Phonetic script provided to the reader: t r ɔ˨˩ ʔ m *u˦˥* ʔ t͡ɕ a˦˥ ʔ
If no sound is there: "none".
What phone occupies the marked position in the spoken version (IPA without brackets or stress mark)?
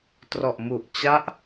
u˨˩